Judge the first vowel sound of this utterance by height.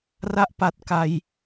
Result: low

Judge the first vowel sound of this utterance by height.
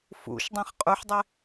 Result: high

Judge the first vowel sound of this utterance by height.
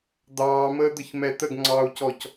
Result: low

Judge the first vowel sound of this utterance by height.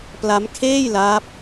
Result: low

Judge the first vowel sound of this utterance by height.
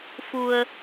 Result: high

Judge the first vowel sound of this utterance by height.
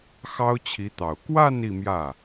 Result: low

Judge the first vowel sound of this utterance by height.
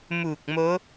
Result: high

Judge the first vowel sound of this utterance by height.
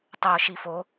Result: mid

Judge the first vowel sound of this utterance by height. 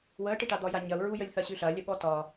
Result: mid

